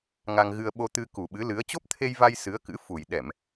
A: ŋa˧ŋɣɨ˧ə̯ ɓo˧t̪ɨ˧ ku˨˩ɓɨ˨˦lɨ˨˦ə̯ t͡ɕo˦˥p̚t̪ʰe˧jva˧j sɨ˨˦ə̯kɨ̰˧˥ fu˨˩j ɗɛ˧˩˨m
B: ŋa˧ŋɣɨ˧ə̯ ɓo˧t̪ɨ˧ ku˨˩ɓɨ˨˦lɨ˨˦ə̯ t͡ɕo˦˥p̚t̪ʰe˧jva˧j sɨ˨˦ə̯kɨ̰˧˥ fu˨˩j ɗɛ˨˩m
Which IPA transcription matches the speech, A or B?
A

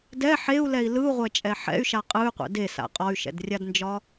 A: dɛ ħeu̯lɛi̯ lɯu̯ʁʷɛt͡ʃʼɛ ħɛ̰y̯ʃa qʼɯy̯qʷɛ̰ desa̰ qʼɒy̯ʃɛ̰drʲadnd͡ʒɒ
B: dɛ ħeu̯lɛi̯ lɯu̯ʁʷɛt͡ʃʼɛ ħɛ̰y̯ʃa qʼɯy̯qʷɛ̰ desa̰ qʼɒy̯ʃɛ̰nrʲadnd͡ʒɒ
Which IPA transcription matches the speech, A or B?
A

